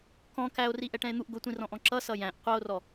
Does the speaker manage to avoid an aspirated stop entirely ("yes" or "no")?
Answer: yes